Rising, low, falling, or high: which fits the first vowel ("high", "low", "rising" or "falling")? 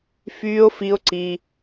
high